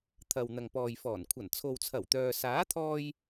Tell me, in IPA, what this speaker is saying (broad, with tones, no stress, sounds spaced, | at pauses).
t̪ʰ ɐ˨ w n̪ ɐ˨ ŋ p ɔː˨ j f ɔː˨˩ n kʷʰ ɐ˨˩ n t͡sʰ o˨ w t͡sʰ ɐ˨˩ w t̪ œː˨ s aː˨˥ t̪ʰ ɔː˧ j